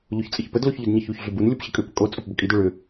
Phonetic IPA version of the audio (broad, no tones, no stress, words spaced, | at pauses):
ʎoçt͡sʼɘçpəd loçʎʏdɲəçuç ɮʏbun lʲopɕɘkʼʏ pəkʼo t͡sʼopbəkʼid ʏɭʏ